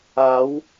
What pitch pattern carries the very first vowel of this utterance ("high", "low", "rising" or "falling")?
rising